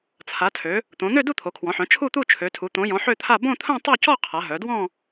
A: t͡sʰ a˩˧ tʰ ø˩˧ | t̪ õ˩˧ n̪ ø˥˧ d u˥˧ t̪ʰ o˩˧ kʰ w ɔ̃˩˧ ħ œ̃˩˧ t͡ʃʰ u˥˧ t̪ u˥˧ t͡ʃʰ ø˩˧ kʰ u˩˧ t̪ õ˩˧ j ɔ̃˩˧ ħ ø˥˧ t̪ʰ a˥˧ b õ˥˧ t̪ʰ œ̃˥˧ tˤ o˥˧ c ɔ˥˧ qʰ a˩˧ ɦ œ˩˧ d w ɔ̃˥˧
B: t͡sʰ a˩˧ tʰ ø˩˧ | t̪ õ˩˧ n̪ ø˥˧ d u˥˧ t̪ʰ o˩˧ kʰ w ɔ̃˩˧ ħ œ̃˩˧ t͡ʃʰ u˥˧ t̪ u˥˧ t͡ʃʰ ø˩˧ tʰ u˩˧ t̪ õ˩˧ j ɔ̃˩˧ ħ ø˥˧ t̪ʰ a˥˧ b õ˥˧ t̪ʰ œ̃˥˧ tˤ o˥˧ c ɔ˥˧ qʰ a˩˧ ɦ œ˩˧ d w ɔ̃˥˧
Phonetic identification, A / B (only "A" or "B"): B